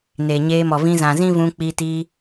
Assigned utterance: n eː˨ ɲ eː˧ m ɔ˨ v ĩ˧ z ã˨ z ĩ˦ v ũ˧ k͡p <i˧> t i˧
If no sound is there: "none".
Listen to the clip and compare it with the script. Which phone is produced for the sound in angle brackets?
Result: i˧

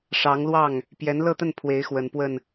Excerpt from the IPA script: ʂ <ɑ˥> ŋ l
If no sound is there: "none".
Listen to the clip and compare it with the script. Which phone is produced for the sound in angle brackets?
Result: ɑ˧˥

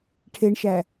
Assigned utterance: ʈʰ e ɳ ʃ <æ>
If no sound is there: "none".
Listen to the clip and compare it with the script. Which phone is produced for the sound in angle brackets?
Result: æ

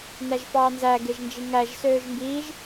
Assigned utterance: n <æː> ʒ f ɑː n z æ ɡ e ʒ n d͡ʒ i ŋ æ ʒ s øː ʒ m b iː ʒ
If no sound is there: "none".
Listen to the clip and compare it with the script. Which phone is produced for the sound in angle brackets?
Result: æ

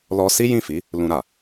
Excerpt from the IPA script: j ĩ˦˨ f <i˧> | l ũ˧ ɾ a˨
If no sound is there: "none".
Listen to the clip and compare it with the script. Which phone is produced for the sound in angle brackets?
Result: i˨˦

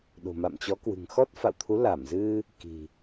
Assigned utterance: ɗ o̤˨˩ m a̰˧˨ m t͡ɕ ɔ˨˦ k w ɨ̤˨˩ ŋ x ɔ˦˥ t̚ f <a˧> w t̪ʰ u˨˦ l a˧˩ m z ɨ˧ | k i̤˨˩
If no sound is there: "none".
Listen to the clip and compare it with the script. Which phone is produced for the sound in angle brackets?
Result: a̰˧˨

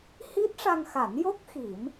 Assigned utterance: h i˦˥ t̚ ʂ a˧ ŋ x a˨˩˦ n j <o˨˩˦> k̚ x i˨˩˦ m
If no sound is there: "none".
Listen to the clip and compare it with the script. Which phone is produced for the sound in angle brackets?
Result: o˦˥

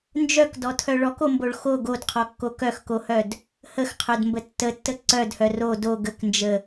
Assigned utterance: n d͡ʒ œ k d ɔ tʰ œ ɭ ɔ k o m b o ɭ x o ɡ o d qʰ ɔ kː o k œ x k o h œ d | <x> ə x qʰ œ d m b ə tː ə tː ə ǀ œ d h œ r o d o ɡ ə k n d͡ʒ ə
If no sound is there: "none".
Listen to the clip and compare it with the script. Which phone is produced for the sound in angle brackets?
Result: h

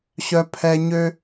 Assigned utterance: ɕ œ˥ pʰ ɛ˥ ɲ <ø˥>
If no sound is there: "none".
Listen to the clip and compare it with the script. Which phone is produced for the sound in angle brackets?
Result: ø˥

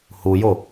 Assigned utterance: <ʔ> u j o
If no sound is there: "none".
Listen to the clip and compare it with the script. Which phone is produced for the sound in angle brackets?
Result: h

